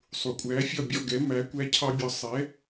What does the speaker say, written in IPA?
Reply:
sˤ u˩ kʷʼ æː˩˥ fʲ ɒ˥˩ bʲ ɔ̰˥˩ ɡ ɛ˩˥ m æ˩˥ kʷ æ˥ cʰ ɑ˥ bʲ ɒ˧ sˤ ɛ˩˥

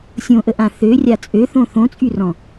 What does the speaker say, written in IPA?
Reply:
sʲ õ ʔ ə ʔ ã θ ø rʲ a t͡sʼ ø θ õ θ õ t͡sʼ y r ɔ̃

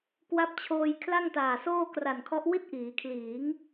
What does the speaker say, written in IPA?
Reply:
k w a˦˥ p̚ t͡ɕʰ oː˧ j kʰ l a˥˩ ŋ t aː˨˩ s oː˥˩ k r a˨˩ n kʰ ɔ˦˥ ʔ w i˥˩ t̚ ʔ iː˩˦ kʰ l iː˩˦ ŋ

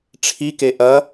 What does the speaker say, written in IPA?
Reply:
ʈ͡ʂʰ i k e ʔ ɐ

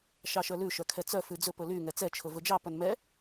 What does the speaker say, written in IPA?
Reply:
ʃ ɑ ʃ œ l ʉ ʃ œ kʰ ɛ t͡s œ f ʉ d͡z ɵ p ɵ l y ŋ ɛ t͡s ɛ t͡ʃʰ ɵ v ɵ d͡ʒ ɑ p œ n m ɛ

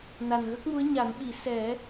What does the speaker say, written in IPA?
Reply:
n a˨˩ n ɣ ə˦˥ k̚ m u˧˥ ə̯ ɲ a˨˩˦ n ɓ i˨˩˦ s ɛ˨˩˦

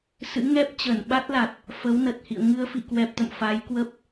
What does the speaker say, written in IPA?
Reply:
s ɨ̰˧˥ ŋ ɛ˦˥ p̚ t͡ɕ ə˧˩ n ɓ a˦˥ t̚ l a˨˩ t̚ | f ə˨˦ w n ə˨˩ t̚ h ḭ˧˨ ə̯ ŋ ɨ˧ ə̯ f ḭ˧˨ k w ɛ˨˩ p̚ t̪ ə̰˧˨ m f a˨˦ j k w ə˦˥ p̚

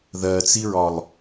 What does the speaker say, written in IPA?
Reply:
ð ɜ t͡s i ɹ ɒ lˠ

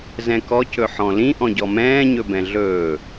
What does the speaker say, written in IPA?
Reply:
z ɛ̃ k ɔ c ɵ ħ ɔ̃ l ĩ ʔ ɔ̃ ɟ ɔ m ɛ̃ː ɲ ɵ b ɛ̃ ɮ ɵː

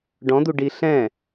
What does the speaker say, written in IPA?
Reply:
ɖ ɔ̃ d̪ u ɖ i ɬ ɛ̃

